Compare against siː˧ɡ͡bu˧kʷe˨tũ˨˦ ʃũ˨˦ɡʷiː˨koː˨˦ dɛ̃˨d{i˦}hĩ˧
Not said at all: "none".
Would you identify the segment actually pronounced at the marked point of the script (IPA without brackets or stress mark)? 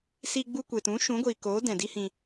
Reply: i˦